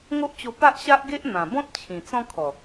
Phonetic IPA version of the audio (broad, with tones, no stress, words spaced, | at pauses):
ŋo˦ʔt͡ɕo˧ pa˦ʔɕa˦ʔɡe˦ʔ n̪ã˨˩bɔ̃˦t̚t͡ɕʰĩ˨˩ t͡sɔ̃˦kʰɔ˨˩